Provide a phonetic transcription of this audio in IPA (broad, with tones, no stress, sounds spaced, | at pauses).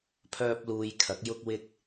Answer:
pʰ œː˥ p̚ l uː˧ j kʰ ɐ˨˥ k̚ j ʊ˥ k̚ w ɪ˥ k̚